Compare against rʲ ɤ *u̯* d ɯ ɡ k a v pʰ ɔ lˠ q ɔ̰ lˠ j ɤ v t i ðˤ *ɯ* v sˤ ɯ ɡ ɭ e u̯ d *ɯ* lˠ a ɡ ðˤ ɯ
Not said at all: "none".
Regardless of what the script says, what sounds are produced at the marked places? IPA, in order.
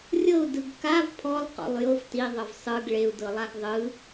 u̯, ɤ, ɤ

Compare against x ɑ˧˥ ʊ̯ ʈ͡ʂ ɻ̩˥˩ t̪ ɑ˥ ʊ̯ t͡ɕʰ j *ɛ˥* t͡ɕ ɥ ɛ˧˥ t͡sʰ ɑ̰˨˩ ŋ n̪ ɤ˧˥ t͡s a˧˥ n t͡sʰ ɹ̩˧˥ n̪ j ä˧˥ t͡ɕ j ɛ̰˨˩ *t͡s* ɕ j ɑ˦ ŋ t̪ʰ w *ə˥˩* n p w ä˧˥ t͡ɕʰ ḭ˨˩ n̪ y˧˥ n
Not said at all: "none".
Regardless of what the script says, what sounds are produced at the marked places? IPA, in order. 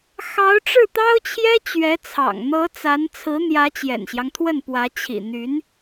ɛ˥, n, ə˥˩

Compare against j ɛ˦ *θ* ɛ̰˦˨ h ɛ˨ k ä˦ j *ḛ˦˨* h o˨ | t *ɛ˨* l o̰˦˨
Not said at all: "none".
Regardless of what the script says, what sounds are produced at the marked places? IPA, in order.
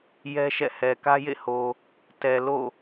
ʃ, ḛ˦˨, ɛ˨

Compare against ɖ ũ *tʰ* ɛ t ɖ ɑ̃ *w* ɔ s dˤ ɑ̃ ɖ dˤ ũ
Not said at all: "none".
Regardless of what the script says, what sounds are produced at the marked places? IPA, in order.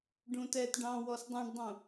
t, w

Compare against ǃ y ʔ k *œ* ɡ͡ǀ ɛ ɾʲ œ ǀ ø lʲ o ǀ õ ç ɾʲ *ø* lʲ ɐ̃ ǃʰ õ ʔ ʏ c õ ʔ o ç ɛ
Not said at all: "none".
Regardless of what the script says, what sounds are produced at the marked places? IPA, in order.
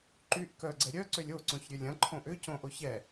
œ, ø

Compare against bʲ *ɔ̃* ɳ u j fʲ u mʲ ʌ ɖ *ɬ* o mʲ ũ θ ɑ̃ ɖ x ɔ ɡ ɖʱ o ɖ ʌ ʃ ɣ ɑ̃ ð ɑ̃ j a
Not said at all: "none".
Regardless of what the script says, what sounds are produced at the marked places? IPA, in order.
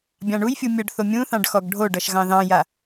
ɑ̃, θ

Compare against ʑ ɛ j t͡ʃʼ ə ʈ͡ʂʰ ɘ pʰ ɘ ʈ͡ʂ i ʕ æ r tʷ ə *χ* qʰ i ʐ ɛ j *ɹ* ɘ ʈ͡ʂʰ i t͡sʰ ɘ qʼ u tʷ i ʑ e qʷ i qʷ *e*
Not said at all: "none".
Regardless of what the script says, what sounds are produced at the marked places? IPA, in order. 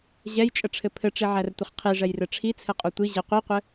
χ, r, ɘ

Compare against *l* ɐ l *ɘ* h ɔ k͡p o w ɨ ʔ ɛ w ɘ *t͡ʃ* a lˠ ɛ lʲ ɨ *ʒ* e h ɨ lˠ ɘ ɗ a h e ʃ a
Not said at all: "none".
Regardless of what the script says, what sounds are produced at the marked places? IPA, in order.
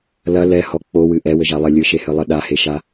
l, ɛ, ʒ, ʃ

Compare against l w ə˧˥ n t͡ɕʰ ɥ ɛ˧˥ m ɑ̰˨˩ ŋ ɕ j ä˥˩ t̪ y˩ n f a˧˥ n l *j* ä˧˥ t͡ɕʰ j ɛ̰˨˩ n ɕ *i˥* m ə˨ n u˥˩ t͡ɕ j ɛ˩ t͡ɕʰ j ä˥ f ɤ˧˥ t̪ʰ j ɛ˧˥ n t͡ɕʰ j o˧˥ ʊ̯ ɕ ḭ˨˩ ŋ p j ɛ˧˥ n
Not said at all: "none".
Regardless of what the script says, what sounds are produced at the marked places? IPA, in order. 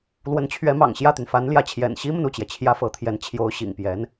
j, i˥

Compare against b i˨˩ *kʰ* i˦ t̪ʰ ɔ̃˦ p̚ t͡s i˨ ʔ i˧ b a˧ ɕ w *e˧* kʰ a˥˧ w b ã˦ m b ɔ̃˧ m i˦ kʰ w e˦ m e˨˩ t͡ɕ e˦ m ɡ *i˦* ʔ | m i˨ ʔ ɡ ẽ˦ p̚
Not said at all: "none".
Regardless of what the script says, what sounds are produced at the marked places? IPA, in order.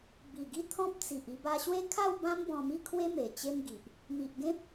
ɡ, e˦, i˨

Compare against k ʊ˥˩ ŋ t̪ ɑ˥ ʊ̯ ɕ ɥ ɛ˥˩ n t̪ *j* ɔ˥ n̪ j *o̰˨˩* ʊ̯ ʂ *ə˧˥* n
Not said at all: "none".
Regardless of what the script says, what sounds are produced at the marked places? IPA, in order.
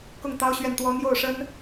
w, o˥˩, ə˥

